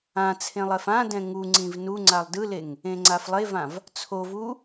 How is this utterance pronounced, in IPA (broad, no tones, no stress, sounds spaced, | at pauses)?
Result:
ã t͡sʰ ẽ lˠ ɛ f ã d ɛ̃ ŋ u ŋ͡ǀ ĩ v n u ŋ͡ǀ a lˠ d ɯ l e ŋ | ẽ ŋ͡ǀ a f lˠ e v ã v | t͡sʰ o v u